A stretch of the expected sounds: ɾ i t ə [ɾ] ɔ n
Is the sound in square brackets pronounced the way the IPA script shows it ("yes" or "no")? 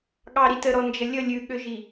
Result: yes